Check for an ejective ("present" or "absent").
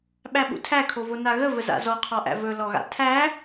absent